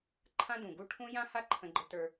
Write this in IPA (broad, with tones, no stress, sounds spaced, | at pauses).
ǃʰ ã˦ d ũ˨ ɡ u˦ ʈʰ ũ˦ j ã˦ h a˦ ǃʰ ə̃˦ ɡ͡ǃ ə˦ t ə˞˦